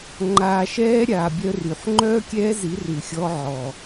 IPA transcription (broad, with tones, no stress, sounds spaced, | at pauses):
ŋ͡ǃ aː˨ ʃ ɛː˦ ɾʲ aː˨ bʲ œ˦ r y˨ ħ ŋ͡ǃ œː˦ kʲ ɛː˦ z i˨˦ r ʉ˨ xʲ ɔ˦ ʕ ɔ˨